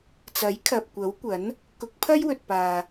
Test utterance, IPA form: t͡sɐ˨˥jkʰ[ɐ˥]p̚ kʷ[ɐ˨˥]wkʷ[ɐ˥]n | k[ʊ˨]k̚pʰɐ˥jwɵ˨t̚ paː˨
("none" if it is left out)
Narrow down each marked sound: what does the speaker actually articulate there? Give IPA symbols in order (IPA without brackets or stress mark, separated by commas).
ɐ˨, ɐ˨˥, ɐ˨˥, ʊ˨˥